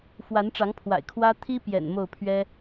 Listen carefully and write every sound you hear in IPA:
f w a˨˦ n ʈ͡ʂ ɑ˨˦ ŋ pʰ w a̰˨˩ ɪ̯ kʰ w ä˦ t̪ʰ i˦ p j ɛ̰˨˩ n m o˥˨ ʊ̯ pʰ ɥ ɛ˦

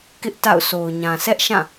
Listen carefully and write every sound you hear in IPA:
k ɪ˦ ʔ t a̰˦˨ ʊ̯ s o˨ ʊ̯ ɲ ã˨ s ɛ˦ ʔ ʃ ã˦˨

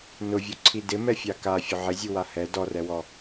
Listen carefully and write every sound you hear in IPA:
n ʊ vʲ u ǀʰ i d ɪ m ɛ fʲ a k a fʲ ʊ ʕ ɪ zʲ u w a h ɛ d ɔ r ɛ w ɔ

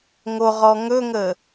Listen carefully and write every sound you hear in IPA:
ŋ o ʁ ɔ ŋ ɵ ŋ ə

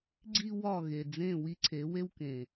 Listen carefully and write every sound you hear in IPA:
ɡ͡ǀ i˦ w ɒ˦˨ ɣ e˨ d͡z ẽ˦˨ w i˦ ǀʰ e˨˦ w e˦ w k ẽ˨

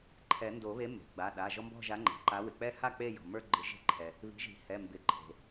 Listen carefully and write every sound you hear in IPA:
ǃʰ ɛ˨˩˦ n d o˨˩˦ β e˨˥ m e̤˩ ɡ͡b a˩˧˩ ɗ a˩˧˩ ʒ ɔ˦ m b ɔ̤˥˨ ʒ a˨˥ ŋ͡ǃ ɛ̤˩ ǃ a˨˥ w ɪ˩ k͡p ɛ˦ h a˥˨ k͡p e˥˨ j ɔ̤˩ m ə˞˦ ɡ͡ǃ ɪ˨˩˦ ʒ e̤˨˥ ǃʰ ɛ˩ | β i̤˨˥ ʒ i̤˨˩˦ h ɛ˩˧˩ m b ɪ˨˩˦ ǃʰ e̤˩

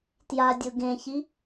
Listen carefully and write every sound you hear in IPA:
t j a dʲ ʊ ɡ ẽ ç i

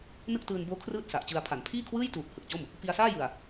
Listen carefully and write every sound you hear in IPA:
n ɯ˥˩ k̚ t ɯː˧ n b oː˦˥ kʰ r ɯː˥˩ t̚ s a˨˩ ʔ t͡ɕ ɯ˧ a̯ pʰ a˩˦ n pʰ iː˥˩ kʰ w ɯː˥˩ j t uː˨˩ p̚ h ɯ˨˩ k̚ t͡ɕ o˥˩ m | p i˧ a̯ s aː˥˩ j ɯ˨˩ a̯

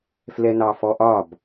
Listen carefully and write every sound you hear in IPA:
f l ɛ n ɑ f ɔ ʔ ɒ b

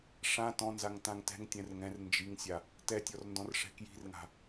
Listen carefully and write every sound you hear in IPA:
ʂ ã t ɔ̃ n z a ŋ t ã ŋ t ɛ̤ ŋ tʲ ɛ̃ r ŋ ɛ̃ r n d͡ʒ i ŋ sʲ a | t ɛ tʲ ɔ r n d ɔ̃ r ʂ ɛ̤ k j i̤ r ŋ a̤

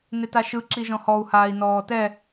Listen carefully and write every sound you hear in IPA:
n e t a ʃ ɯ ǁ i ʒ ɔ̃ h ɔ u̯ h aː i̯ n ɔː t ɛ

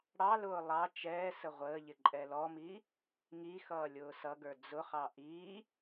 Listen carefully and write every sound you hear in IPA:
ɽ ɑ l ʊː lˠ ɑ t͡ʃ ɛː s ə ʁʷ əː ʎ ɪ ǃʼ ɛ l ɔ m i | ŋ i x ʌː lʲ ʊː s ʌ ɡ ə˞ d͡z ʊ χ ɑ ʔ i

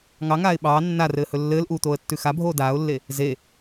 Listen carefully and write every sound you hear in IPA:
ŋ ɑ ŋ aː ɪ̯ ɓ ɑː nː a r ɘː h ɵ lː ɘː l ʔ uː t̪ oː ə̯ tː ʉ x a bʱ oː d aː ʊ̯ lː e | z e

